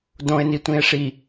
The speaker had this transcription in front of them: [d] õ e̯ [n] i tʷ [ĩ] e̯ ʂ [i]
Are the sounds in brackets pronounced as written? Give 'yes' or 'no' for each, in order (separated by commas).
yes, yes, yes, yes